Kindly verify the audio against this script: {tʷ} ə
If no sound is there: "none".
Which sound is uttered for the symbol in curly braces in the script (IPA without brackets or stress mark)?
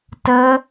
t